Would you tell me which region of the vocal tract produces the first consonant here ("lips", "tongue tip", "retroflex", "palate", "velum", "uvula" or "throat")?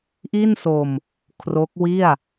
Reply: throat